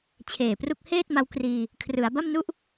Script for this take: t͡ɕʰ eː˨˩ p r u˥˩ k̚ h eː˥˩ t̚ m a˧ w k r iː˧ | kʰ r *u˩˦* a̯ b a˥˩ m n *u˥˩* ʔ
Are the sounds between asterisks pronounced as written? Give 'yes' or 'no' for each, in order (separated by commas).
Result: no, yes